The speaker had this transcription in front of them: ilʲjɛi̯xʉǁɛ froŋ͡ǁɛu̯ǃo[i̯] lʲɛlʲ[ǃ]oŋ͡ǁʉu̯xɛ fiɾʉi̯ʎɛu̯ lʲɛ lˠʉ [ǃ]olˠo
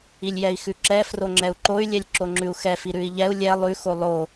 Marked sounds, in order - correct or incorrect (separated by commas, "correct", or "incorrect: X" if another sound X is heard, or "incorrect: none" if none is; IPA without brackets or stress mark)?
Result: incorrect: y̯, incorrect: ǁ, incorrect: x